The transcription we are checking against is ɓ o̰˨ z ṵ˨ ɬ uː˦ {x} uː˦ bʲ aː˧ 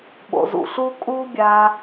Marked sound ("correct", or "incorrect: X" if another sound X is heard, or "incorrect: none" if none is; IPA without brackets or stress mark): incorrect: kʼ